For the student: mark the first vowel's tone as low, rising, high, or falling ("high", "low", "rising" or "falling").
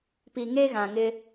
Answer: low